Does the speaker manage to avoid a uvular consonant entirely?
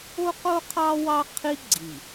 no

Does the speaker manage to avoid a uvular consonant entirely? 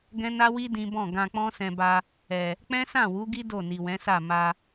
yes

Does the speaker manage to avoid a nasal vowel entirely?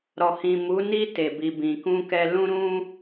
no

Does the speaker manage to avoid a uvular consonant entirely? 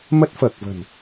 yes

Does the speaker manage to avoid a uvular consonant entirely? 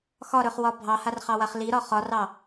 no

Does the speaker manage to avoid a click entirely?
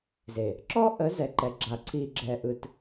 no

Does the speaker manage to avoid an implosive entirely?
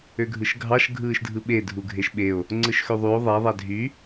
no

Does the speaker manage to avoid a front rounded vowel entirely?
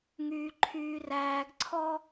no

